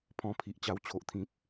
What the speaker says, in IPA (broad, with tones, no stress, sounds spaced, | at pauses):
pʰ ɔ̃˧ pʰ i˨ ʔ t͡ɕ a˧ w t͡ɕʰ o˨ ʔ t̪ʰ ĩ˨ p̚